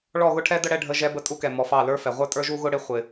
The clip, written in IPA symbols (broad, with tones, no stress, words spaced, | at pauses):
ɭɔ˦˨ɣʊ˦ʈʰɛ˦də˦ ɽɛ˧ɖʱə˧ʒɛ˧ bə˧tʼu˧kɛ˨ mɔ˨fɑ˦˨lə˞˦fɛ˨ ʁʷə˞˦tʼə˞˦ʒu˦ɣʊ˦ ɽɪ˦ χʷɪ˨